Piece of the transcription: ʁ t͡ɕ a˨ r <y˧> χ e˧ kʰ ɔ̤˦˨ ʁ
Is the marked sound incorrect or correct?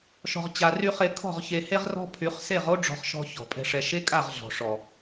correct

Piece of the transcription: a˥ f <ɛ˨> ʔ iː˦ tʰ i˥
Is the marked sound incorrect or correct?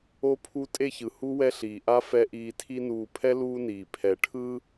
incorrect: ɛ˥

